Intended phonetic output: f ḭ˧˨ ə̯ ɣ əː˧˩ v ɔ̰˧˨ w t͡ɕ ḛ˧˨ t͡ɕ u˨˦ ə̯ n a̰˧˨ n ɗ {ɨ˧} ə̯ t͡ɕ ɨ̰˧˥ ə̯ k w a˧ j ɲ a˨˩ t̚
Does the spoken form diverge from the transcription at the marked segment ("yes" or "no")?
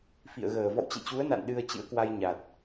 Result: no